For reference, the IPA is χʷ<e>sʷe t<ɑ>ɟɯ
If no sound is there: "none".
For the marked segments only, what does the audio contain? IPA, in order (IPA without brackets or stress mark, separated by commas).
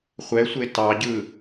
ɛ, ɑ